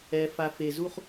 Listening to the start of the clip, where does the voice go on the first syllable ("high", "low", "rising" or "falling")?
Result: low